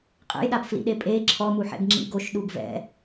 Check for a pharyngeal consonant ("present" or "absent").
present